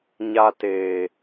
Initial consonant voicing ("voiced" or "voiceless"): voiced